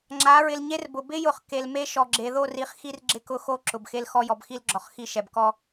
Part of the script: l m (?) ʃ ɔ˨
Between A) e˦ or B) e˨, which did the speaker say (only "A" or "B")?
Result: A